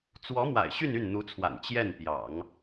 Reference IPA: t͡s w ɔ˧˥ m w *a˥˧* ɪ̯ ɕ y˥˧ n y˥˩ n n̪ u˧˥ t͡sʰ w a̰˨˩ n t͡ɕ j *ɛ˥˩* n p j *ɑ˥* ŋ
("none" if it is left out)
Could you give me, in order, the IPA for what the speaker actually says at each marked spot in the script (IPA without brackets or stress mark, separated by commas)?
a̰˨˩, ɛ˥˩, ɑ̰˨˩˦